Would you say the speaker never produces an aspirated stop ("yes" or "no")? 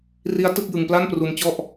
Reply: yes